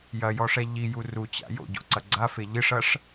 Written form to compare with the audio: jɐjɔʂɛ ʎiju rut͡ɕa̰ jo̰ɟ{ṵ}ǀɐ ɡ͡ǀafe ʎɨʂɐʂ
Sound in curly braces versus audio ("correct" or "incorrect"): incorrect